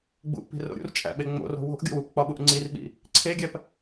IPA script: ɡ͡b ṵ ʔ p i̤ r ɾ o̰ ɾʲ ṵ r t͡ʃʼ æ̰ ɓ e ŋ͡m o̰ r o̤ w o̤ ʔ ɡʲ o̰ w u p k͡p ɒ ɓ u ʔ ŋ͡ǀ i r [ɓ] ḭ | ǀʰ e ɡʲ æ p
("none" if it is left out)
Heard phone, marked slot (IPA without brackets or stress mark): ɓ